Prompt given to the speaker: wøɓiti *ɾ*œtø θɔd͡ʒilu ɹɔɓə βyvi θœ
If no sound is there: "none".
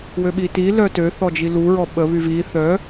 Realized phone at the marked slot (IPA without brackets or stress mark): l